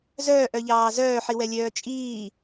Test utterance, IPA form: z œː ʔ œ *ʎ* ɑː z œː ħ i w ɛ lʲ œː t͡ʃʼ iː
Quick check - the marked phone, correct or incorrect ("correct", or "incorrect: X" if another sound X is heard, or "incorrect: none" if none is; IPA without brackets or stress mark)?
correct